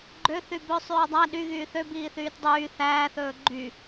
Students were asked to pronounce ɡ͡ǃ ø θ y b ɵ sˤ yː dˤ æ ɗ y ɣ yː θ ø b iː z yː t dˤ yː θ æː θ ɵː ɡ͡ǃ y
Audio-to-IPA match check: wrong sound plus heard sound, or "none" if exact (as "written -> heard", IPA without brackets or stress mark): z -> θ